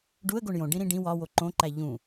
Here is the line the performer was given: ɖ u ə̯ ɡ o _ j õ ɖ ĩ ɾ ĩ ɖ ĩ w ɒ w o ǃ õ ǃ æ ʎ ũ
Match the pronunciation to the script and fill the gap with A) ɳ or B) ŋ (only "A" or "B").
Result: A